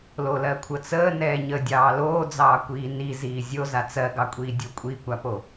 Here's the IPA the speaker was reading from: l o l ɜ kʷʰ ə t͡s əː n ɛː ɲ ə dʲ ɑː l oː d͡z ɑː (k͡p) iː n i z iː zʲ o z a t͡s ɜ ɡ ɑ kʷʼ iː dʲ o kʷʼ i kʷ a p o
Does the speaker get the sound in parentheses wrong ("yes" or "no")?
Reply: yes